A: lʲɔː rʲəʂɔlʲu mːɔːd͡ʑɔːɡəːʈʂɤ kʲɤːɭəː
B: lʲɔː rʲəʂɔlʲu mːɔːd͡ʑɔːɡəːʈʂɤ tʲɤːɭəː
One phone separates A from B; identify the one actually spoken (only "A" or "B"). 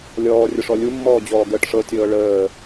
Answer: B